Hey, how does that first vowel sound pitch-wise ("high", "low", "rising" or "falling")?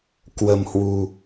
low